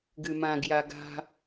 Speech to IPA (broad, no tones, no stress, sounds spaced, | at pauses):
ɡ ɨ m ã ɡ j a ɡ a̤